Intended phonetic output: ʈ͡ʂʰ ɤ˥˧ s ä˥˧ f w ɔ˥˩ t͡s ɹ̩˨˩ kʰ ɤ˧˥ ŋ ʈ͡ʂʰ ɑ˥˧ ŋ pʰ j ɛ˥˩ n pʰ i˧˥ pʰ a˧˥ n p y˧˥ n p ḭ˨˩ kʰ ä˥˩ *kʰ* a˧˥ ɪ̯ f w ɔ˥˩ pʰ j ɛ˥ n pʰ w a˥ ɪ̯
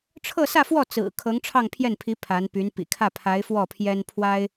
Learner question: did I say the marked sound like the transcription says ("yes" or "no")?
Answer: no